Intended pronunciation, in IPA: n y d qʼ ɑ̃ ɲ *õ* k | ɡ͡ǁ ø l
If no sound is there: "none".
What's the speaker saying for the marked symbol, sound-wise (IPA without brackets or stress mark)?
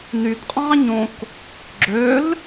õ